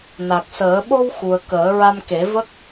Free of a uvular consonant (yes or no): yes